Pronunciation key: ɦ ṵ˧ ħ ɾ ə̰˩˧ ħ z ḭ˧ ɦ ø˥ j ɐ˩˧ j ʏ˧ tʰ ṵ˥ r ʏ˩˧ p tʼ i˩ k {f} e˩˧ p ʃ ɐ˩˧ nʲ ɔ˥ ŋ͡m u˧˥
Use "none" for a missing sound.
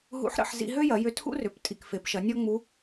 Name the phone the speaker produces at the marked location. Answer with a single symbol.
f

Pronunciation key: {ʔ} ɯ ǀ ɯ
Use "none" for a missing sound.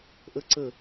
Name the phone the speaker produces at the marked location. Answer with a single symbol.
ʔ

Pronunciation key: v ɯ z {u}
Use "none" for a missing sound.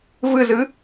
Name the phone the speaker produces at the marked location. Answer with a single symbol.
ɯ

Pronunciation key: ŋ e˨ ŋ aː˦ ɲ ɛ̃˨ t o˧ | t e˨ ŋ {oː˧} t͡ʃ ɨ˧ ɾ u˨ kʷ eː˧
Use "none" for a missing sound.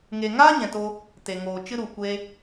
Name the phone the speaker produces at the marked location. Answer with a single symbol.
oː˨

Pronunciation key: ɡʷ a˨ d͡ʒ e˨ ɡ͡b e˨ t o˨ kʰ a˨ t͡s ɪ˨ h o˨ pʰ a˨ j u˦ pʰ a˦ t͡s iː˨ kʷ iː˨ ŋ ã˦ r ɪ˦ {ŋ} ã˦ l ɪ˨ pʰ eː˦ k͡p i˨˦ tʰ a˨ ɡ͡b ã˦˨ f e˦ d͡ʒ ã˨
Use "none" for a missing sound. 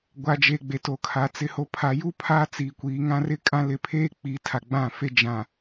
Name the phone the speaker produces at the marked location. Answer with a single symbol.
kʼ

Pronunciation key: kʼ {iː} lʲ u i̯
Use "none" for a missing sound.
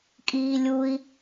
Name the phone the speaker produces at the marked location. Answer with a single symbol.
iː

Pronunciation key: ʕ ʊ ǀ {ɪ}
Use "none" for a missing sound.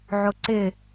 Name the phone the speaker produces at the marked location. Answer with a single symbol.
ɪ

